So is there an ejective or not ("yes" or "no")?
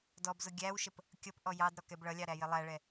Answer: no